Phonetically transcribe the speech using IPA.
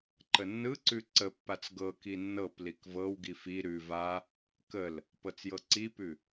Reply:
ǃ ə nː ɯ ǀ ʉ ǀ ə pː a t͡s ɡ ɤ k i nː ɤ p l i k v ɤ w ɡ i f i ɾ ʉ v a | k ə l | p ɤ t͡s j ɤ ǀ i p ʉ

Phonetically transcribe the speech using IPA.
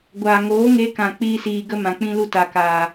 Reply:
ɡʷ aː˨ ŋ oː˨˦ ŋ e˧ k ã˨ k͡p iː˦ s iː˧ ɡ ə˦ m ã˨ k͡p ĩ˦ l u˦ t a˨ k aː˨

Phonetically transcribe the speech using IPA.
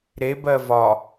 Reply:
ɾ e b ɜ v ɒ

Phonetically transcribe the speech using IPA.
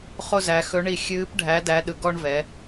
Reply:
χ o˦ z æ˩˧ x ɵ˨˥ ɳ i˧˩ xʲ ɨː˨˥ p ɖʱ æ˨˥ d æ˨˥ ɗ ɯ˩˧ ɡ ɔ˦ ɳ v ɛ˩˧

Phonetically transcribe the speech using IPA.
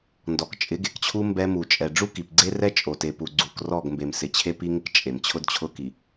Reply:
n d ɔ˨ k t͡ʃʼ ɪ˨˦ ɡ e˨ k t͡ɕʰ u˦ m b ɛ˦ m u˨ t͡ʃʼ ɛ˨ ɖ͡ʐ u˦ k i˨ p ɡ͡ǀ e˦ r ɛ˦ t͡ʃʼ o˨ t e˨ p u˨ ɡ͡ǀ u˨ k r ɔ˦˨ ɡ m b e˨ m s ɪ˨ t͡ɕʰ e˦ p i˦ ŋ ɪ˦ k t͡ʃʼ e˨ m t͡ɕʰ ʊ˦ d t͡ɕʰ ʊ˦ k i˨

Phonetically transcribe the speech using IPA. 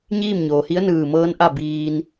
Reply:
ɲ iː˥˨ m ɲ oː˩ h i˧˥ ə̯ n ɯː˧˩ m ɤː˧˥ n ʔ a˥˨ b iː˧ n

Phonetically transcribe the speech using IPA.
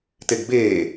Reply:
t e ɡ b eː

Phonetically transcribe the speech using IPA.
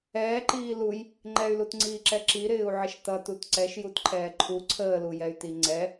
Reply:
ɛː ǃ iː l u j | ŋ͡ǃ ɛ y̯ l u t ŋ͡ǀ iː ǁ ɛ ǁ i ɾ ɪː u̯ ʕ ɪ ʃ t ʌ t u t ǀ ɛ ʃ j u t ǃʰ ɛː ǃʰ u ǀʰ əː l u j ɛ y̯ t i ŋ͡ǀ ɛ

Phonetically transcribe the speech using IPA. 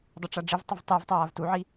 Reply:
dˤ o ʈ͡ʂ a ɖ͡ʐ ɪ v tˤ ʊ v tˤ i v tˤ aː v t u ʕ i

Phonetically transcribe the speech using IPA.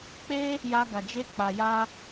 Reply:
k͡p e˦ | j a˦ ɡ a˧ d͡ʒ e˦ k͡p a˧ j a˦

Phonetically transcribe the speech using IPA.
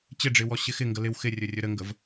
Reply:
t͡ɕ ɪ ɖ͡ʐ ɪ w ɔ ɕ ɪ x ɪ ŋ ɡ ə l ɪ w x ɪ rʲ ɵ rʲ ɵ ɾ ə ŋ ɡ ə v

